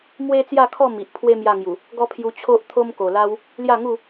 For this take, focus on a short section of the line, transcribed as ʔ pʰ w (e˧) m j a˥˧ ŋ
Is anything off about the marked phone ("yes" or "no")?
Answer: yes